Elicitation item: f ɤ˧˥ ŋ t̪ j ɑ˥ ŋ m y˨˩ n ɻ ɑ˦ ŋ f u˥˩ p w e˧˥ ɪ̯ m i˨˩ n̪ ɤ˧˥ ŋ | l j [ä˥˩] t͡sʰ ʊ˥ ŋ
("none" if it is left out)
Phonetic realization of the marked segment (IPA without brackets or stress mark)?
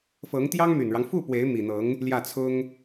ä˥˩